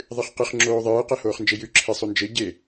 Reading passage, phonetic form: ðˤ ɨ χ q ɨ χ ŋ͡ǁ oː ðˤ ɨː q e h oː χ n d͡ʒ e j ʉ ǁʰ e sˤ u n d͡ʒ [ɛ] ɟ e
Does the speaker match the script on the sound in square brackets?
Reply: no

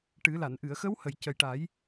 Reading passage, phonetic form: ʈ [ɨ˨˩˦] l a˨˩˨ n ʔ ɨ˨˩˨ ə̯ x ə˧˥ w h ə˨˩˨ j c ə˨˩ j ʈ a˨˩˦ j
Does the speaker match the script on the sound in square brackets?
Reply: yes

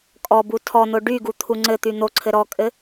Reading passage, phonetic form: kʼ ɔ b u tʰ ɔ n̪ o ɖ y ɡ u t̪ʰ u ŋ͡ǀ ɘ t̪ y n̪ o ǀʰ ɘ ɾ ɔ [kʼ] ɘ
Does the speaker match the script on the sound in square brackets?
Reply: yes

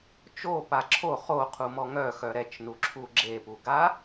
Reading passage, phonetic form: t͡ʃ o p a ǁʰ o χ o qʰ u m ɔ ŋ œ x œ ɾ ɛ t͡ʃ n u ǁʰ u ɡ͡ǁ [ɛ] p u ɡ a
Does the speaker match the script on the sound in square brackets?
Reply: no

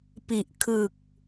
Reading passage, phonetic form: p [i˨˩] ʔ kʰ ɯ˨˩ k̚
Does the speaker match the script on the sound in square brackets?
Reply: yes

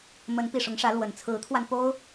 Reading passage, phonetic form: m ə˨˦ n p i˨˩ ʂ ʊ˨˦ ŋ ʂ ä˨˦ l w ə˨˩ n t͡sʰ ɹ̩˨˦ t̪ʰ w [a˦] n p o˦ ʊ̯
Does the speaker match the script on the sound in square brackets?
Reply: no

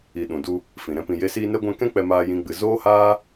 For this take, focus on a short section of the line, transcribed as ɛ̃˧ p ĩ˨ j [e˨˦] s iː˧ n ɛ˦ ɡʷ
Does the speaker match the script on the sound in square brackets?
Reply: no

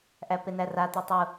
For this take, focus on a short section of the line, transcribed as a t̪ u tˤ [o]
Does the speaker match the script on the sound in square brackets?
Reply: no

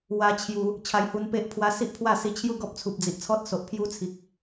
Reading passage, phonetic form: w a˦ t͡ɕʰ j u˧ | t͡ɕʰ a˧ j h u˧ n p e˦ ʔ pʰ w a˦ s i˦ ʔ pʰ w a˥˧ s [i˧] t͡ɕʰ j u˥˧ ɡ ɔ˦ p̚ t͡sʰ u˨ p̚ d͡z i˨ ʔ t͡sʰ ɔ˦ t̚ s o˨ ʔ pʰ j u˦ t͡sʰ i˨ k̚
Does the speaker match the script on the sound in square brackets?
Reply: yes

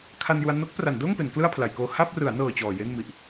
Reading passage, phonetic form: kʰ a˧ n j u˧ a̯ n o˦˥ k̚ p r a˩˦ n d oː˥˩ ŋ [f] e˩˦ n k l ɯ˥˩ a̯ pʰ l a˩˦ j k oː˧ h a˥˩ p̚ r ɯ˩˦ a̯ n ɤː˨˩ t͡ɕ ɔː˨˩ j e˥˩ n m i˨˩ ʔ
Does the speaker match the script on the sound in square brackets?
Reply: no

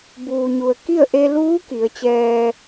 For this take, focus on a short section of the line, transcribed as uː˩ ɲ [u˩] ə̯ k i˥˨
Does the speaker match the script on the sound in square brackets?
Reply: yes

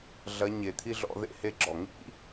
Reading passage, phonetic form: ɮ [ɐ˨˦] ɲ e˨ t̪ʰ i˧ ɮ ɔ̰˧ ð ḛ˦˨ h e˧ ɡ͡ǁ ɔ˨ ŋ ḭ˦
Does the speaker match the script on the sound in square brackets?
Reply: yes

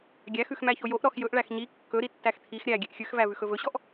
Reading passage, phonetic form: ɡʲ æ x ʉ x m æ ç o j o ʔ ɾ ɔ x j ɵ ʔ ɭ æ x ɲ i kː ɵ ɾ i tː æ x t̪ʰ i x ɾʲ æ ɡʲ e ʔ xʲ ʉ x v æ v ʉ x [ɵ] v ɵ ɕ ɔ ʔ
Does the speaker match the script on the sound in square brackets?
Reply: yes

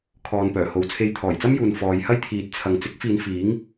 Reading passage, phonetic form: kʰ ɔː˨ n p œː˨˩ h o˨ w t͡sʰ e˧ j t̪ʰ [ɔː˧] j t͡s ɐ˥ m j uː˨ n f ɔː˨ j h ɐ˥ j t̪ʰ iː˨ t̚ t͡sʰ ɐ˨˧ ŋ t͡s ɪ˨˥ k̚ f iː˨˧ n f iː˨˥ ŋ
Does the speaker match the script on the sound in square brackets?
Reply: no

